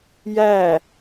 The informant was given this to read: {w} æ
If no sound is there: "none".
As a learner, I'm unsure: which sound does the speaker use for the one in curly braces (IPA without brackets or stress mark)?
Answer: j